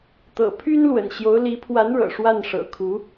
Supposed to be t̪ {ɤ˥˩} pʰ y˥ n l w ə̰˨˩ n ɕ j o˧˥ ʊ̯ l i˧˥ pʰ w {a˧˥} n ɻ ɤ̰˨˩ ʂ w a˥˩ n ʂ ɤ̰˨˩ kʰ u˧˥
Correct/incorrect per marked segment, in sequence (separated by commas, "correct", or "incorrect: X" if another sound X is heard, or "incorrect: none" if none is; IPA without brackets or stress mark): incorrect: ɤ̰˨˩, correct